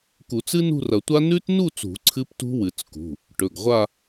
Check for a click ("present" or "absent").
present